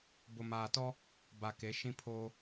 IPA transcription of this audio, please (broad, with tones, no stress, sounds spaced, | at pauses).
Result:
b ʊ˨ m aː˨ t ɔ˦ | b a˨ k e˨˦ ʃ ĩ˦ pʰ oː˦